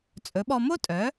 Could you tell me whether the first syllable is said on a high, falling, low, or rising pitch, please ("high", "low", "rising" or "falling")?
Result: rising